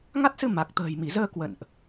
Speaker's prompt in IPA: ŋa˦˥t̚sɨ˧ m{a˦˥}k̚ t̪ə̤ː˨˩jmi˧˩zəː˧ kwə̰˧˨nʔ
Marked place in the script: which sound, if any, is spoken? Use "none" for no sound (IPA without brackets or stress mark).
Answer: a˨˩